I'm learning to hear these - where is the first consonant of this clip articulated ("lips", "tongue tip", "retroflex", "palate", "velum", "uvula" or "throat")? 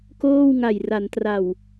velum